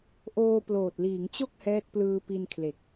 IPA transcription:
ʔoː˧ploː˨˩t̚liː˩˦ŋt͡ɕo˥˩k̚ hɛː˦˥t̚plɯː˧pi˧nkʰle˨˩k̚

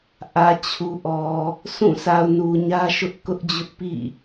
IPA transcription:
ʔä˨t͡ɕʰu˨ʔɔ˨ | sʰũ˦˨ sʰa˨ʊ̯nu˨ ɲä˦ʃʊ˦ʔkʊ˦ʔd͡ʑʊ˦ʔ pḭ˦˨

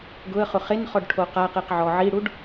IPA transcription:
ɡʊə̯χʊ χenχɔɖʈʰo qaqiqʕɔ ʕiɽuɖ

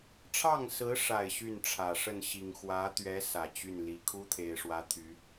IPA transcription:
ʈ͡ʂʰɑ˥˩ŋsɹ̩˧˥ʂa˨˩ɪ̯ ɕy˥˩nʈ͡ʂʰä˨˩ ʂə˥˩nɕi˨˩ŋ xwä˧˥t̪ɥɛ˧˥ sä˨˩t͡ɕy˥˩nli˧˥ kʰu˥t̪ʰe˨˩ɪ̯ʂwä˧˥ t̪ʰy˧˥

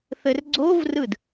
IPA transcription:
θɘrɡ͡ǀovrɯd

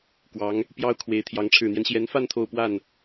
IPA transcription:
kwɑ˧˥ŋ | pjɑ˥ʊ̯kʰwe˧˥ɪ̯t̪ʰjɑ˧˥ŋ ʈ͡ʂʰɻ̩˨˩n̪jɛ˦nɕjɛ˧˥nfa˥˧n t̪ʰo˥˧ʊ̯pwa˥˩n

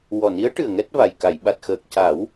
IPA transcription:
wɔ˨˩ni˧˥ə̯ʈɨ˨˩ə̯ ŋɛ˦˥t̚va˨˩j ka˨˩˨jɓa˨˩t̚xəː˨˩k̚ ca˨˩˦w

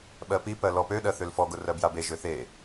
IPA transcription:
ɓɜpipɜ lɔpøɗɜ θølfɔɡʊ rɜbjabeʒø θe

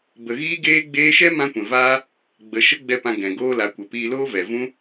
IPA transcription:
bə˨ɣiː˦ ɡeː˦ɡ͡beː˦ ʃɛ˦ mã˦kʷɛ̃˨ vaː˦ | ɡ͡bə˨ ʃə˦ɡ͡bɛ˧ pã˧ɡɛ̃˨ ɡoː˦la˨˦ kʷə˨piː˧loː˦ vɛ˨vũ˦

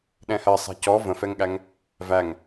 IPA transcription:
ɗɛ̃hɜ sˤɛ̤cɔ və̃fɛŋɠæŋ | væŋ

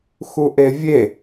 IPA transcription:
xuʔevʲe

